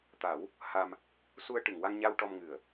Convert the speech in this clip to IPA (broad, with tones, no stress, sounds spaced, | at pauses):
t̪ a˨˩˦ w | h a˧ m | s u˧ ə̯ ʈ ɨ˨˩˨ ŋ w a˧ ŋ ɲ a˧ w ʈ ɔ˧ m ŋ ɨ˨˩ ə̯